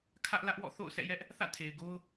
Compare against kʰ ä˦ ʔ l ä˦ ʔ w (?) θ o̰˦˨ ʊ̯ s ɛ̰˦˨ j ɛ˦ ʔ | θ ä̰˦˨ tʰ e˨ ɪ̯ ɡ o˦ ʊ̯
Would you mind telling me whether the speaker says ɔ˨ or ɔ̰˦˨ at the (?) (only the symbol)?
ɔ̰˦˨